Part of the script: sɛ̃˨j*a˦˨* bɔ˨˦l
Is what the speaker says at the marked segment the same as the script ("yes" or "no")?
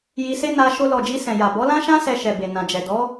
no